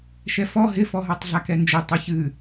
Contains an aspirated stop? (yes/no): no